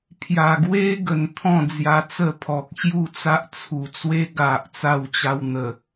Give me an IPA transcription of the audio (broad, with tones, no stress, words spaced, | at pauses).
pʰja˨˩ɡwe˦ ɡə˨˩n t̪ʰɔ̃˥˧d͡zja˧t͡sə˥˧pʰɔ˨k̚ ɕju˥˧t͡sa˦ʔt͡sʰu˨˩t͡swe˦ ɡa˨ʔ t͡sa˧wt͡ɕa˧w n̪ə˨˩